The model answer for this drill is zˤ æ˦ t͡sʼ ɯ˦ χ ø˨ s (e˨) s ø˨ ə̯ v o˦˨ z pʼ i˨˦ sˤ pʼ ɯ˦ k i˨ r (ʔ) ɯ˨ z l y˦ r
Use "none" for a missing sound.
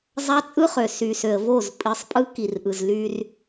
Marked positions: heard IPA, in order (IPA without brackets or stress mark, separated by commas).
y˨, ʔ